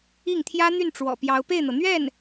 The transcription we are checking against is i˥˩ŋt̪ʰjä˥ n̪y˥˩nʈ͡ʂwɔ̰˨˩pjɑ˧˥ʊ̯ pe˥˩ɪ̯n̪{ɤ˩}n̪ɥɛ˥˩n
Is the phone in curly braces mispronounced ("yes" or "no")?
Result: no